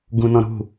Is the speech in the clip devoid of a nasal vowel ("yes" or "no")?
no